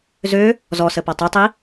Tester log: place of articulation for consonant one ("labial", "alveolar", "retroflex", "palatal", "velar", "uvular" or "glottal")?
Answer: alveolar